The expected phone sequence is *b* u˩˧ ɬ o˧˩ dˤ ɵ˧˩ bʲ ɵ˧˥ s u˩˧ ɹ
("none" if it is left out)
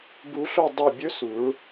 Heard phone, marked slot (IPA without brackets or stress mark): b